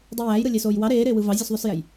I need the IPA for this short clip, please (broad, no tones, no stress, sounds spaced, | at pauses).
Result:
dˤ i j æː j ɾ ɯ lʲ e s oː j w ɑ ɾ eː ɾ eː w ɯ v ɑ zʲ u s ðˤ o s j æ j